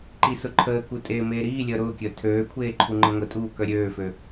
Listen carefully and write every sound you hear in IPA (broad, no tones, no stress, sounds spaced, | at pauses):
ǃ i s ʊ ǃʰ əː k u tʼ eː m eː ɾ iː lʲ əː ɾ ʊː kʲ əː tʰ øː kʷʰ eː ǃʰ u ŋ͡ǃ ə ŋʷ ə tʼ uː k œ ɾʲ øː f ø